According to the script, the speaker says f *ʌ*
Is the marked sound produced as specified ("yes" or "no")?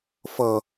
yes